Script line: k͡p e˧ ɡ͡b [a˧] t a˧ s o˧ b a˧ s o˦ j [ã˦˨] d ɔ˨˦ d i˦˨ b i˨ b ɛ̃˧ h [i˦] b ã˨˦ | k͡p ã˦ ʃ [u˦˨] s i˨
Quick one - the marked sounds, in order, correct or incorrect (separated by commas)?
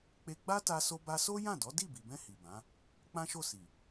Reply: incorrect, correct, incorrect, incorrect